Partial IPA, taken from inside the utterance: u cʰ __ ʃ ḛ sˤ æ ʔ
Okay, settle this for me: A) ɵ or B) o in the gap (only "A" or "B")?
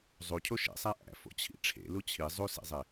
B